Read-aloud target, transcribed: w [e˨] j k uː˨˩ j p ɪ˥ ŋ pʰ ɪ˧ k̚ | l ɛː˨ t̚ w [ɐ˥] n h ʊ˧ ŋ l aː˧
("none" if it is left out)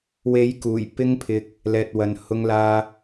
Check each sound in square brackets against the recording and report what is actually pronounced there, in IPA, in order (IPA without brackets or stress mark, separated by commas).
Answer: e˨˥, ɐ˨